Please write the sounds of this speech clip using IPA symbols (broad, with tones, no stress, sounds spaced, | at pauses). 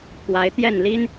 t̪ʰ w a˨˦ ɪ̯ t̪ j ɛ˥˨ n l i˦ n